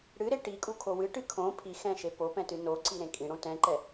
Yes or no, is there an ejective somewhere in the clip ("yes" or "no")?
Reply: yes